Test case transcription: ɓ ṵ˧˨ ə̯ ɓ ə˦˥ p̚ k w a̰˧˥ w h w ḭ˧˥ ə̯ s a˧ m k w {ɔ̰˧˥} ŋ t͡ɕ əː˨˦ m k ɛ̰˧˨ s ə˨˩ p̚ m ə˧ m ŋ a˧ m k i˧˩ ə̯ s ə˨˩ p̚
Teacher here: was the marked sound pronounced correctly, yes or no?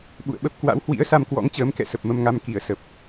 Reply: yes